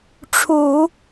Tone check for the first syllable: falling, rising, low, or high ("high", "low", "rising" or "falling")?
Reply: low